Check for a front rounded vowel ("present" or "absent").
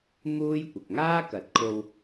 absent